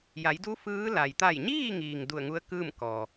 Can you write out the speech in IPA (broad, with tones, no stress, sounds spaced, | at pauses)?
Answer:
j a˩˧ j d u˧˥ f ɯː˧˥ l a˩ j t̪ a˧˩ j ɲ iː˥˨ ŋ iː˩ ŋ d u˧˩ ə̯ ŋ u˧˥ ə̯ k ɯː˥˨ m k ɔː˩